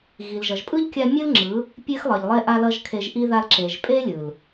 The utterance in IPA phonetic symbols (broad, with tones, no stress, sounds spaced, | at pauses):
ɣ i˨ l ʒ ʌ˨ ʒ pʼ ɯ˦ ʎ kʲ a˧ mʲ ɯ˦ l ŋ͡ǁ ɯ˨˦ | pʲ e˦ x lˠ ʌ˨ ʎ lˠ e˦ ʔ a˧ l ʌ˧ ʒ kʰ e˧ ʒ ʔ i˦ ð a˧ l ǁ e˨ ʒ pʼ e˦ lʲ ɯ˨ l